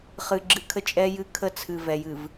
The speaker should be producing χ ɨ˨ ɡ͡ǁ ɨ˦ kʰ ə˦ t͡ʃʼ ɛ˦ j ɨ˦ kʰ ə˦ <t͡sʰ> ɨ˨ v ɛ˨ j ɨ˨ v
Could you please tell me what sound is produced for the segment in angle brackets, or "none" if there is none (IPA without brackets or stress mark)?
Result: t͡sʰ